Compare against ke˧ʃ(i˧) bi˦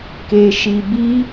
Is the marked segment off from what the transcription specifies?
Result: no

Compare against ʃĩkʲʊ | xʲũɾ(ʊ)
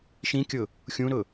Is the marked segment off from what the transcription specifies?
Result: no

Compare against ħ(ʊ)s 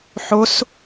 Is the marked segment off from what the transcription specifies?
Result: no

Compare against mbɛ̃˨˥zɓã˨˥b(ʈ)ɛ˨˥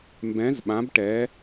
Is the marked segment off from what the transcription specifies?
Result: no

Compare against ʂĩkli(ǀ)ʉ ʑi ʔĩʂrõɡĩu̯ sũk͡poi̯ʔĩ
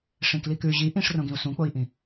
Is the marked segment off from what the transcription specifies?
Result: yes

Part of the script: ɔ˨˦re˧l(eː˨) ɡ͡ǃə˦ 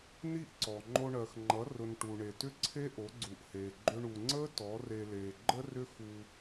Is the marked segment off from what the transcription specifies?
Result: no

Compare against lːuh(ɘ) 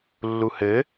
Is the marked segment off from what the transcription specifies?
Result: no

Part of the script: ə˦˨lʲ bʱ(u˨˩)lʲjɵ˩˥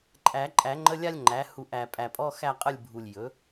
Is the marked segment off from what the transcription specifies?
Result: no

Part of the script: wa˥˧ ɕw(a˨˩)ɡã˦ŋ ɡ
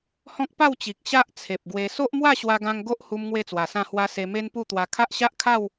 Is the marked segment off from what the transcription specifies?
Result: yes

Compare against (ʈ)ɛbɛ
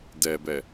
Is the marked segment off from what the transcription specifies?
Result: yes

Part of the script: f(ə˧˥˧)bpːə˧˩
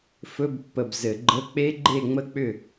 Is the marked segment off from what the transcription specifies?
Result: yes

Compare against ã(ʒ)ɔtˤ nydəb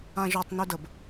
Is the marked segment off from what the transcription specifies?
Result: no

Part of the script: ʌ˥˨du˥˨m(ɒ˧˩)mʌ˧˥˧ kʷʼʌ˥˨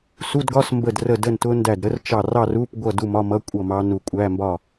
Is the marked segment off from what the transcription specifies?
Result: yes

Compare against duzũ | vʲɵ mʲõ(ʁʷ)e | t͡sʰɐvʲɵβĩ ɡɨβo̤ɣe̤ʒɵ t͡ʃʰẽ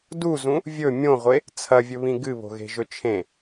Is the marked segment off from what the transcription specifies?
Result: no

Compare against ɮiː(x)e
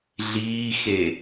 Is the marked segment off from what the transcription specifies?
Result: no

